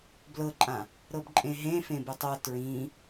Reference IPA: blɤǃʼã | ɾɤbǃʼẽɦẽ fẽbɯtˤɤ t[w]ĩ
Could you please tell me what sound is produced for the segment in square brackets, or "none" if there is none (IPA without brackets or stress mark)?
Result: ɹ